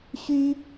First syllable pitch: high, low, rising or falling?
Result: high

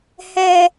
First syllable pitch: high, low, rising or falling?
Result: low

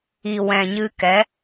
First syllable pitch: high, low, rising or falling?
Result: low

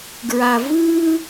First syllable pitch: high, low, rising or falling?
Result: low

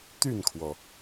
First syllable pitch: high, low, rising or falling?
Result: falling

